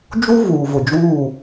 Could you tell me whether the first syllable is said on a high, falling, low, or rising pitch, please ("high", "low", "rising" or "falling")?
high